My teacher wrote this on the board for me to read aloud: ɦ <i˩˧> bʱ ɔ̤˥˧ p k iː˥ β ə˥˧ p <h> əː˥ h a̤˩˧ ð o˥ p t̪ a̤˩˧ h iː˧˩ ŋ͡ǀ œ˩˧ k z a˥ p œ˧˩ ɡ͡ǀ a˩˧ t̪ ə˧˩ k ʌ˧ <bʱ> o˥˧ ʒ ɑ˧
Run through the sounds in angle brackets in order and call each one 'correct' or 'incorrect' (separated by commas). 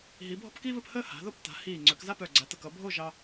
correct, correct, correct